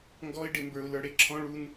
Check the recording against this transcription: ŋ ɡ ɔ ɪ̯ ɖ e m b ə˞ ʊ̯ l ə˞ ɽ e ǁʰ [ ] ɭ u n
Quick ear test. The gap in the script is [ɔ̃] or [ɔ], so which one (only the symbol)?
ɔ̃